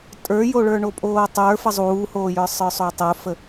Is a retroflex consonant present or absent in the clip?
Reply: present